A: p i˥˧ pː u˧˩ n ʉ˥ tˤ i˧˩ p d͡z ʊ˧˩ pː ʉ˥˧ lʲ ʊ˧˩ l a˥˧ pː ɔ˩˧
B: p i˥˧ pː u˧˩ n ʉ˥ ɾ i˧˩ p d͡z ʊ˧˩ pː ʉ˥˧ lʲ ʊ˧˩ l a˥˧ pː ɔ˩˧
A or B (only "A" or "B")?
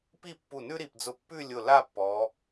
B